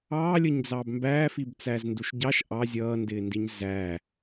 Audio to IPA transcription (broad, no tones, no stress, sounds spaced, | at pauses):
ɑː lʲ ə ɲ d͡z ɑː b m b æː f i b t͡s æː z n d u ʃ ɟ ɑ ʃ ʔ ɑ zʲ ʌː n d ɪː n d i ɲ z æː